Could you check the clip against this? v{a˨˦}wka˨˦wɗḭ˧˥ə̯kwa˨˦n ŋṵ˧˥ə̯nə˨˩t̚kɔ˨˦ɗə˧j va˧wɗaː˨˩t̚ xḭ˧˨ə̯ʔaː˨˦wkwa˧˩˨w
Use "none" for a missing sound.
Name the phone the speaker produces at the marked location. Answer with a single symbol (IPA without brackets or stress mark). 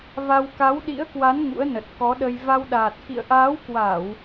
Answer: a˧